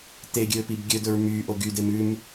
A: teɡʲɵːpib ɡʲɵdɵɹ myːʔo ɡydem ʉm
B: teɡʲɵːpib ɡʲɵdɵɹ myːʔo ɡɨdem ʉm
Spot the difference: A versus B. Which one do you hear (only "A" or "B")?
A